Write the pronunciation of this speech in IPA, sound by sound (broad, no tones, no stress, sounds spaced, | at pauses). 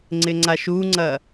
ŋ͡ǀ ɪ ŋ͡ǀ a ʃ u ŋ͡ǀ ɐ